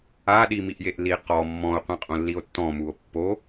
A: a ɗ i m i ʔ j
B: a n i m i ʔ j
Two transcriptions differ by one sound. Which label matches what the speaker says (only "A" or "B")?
A